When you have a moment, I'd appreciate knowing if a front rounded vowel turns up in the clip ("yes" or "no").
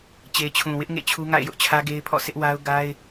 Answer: no